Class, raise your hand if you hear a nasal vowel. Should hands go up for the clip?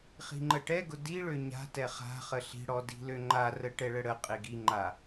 no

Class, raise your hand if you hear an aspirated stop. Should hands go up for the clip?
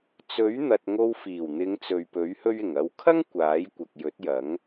yes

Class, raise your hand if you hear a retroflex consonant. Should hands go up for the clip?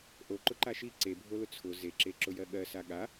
no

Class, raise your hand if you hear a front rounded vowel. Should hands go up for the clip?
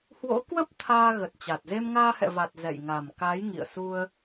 no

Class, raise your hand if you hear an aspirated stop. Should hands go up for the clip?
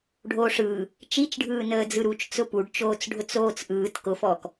no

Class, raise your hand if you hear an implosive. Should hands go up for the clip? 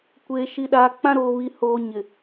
yes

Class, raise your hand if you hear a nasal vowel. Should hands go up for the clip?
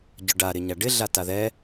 no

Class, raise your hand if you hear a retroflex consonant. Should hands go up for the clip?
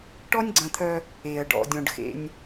yes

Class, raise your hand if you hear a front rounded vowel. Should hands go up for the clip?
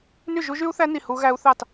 yes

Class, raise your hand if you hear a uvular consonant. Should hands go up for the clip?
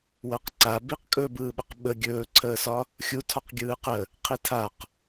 yes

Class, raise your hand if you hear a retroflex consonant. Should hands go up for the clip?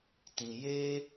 no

